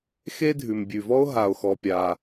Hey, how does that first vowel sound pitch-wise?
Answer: high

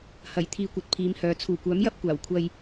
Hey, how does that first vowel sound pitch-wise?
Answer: low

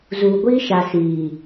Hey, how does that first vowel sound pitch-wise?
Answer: low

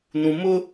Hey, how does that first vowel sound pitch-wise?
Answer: low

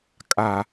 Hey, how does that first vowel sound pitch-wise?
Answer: low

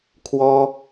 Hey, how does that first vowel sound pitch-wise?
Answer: high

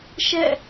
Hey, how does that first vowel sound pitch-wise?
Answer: falling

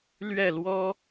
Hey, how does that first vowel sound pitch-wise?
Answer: falling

